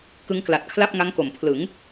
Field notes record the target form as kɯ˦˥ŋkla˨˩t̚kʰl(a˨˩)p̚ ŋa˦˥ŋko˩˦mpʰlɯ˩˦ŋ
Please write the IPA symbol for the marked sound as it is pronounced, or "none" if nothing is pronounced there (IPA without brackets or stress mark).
a˥˩